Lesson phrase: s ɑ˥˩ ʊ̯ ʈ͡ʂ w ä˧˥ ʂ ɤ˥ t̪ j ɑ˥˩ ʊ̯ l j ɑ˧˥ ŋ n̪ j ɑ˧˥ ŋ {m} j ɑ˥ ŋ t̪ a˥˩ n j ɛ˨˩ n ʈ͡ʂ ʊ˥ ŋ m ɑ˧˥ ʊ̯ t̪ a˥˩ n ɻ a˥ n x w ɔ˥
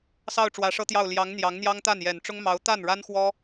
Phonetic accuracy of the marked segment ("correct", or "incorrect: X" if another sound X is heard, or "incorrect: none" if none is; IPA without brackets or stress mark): incorrect: n̪